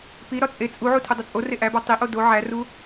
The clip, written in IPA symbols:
p i ɾ ɒ t͡sʼ e t͡sʼ u ʕ u tʰ u dˤ o t͡sʼ o r e ʔ æ b ɒ tˤ i ʔ o d o ʕ æ r u

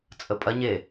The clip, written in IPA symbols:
t͡sʼ ə pʼ ɐ ɲ e

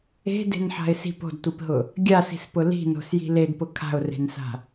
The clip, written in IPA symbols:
e̤ d e̤ n ħ a̤ ɪ̯ s i̤ p o̤ d tʷ i p ɦ ʊ | ɡʲ a s i̤ s p ʊ l i̤ n o̤ s j i̤ l e d p ʊ kʰ a̤ ʊ̯ r e̤ n s a̤

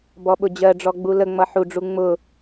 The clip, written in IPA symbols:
b ɔ ɓ ʊ d͡ʑ ɜ ɖ͡ʐ ɔ ɡ͡b u l ə ŋ͡m ʌ ħ u ɖ͡ʐ u ŋ͡m ʊ

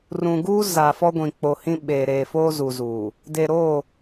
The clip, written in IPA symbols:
r ũ˨ ɡ uː˦ z a˨ f ɔ˦ ɡʷ ĩ˨ k͡p o˨ h ĩ˦ ɓ eː˨ ɾ eː˨ f oː˦ z u˨ z uː˨ | d e˨ ɾ oː˦˨

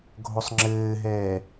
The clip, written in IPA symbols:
ɡʱ o sˤ ŋ͡ǁ ɘː ɦ ɛː

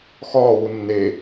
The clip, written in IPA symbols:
x ɒː w u nː e

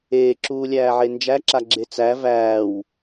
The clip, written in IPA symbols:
eː ǁ uː lʲ æː ʕ e n d͡ʒ æ ǁ a ɡ͡ǁ e t͡s æ v æː w

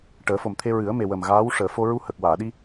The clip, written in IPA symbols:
ʈ əː˨˩˦ f o˨˩ m t̪ʰ e˧ ɹ ɨ˨˩˦ ə̯ m e˨˩ w ə˨˩ m ɣ aː˧˥ w ʂ əː˨˩˨ f o˧ ɹ u˧ h ə˨˩ k̚ w aː˨˩˨ ɗ i˧

